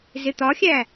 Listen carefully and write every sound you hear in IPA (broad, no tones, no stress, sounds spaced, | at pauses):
z ɪ t̪ ɒ xʲ æ